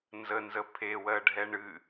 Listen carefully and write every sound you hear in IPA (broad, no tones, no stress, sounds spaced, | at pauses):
n z ə n z ə pʰ e w ɜ ɖʱ ɛ ɳ ɨ